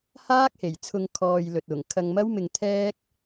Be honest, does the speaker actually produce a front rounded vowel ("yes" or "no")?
no